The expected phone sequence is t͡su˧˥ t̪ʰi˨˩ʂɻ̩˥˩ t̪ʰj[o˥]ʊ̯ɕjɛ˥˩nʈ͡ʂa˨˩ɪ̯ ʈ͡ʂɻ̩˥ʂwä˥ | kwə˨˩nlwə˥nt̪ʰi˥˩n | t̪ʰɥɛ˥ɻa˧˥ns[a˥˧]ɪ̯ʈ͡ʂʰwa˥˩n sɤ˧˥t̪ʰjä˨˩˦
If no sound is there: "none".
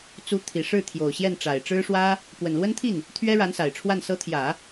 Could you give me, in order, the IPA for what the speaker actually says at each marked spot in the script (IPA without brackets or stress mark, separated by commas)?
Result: o˨˩, a˨˩